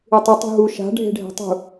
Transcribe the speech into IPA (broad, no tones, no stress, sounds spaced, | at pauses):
ɨ tˤ ɨ tˤ ṳ ɦ u ʃ a̤ ɖʱ e̤ ɖʱ ɛ̤ tˤ ṳ